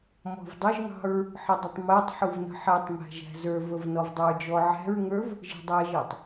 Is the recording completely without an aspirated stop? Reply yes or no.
yes